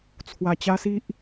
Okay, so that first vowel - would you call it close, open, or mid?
open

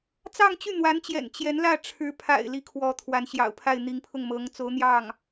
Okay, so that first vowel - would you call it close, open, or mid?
open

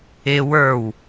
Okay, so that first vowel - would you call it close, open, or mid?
close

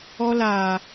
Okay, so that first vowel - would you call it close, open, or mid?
mid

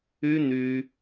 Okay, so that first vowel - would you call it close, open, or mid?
close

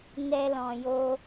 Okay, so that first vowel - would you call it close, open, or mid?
mid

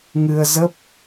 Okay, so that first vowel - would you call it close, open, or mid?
close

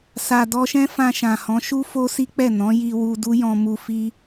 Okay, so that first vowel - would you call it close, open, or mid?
open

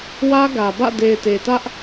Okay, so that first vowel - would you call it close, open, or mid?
open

